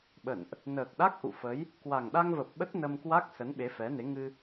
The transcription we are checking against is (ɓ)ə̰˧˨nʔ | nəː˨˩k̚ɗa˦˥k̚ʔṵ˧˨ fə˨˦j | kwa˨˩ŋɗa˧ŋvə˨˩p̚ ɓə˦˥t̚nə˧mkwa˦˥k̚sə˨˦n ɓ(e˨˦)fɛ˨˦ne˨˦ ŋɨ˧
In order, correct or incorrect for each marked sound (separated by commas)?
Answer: correct, correct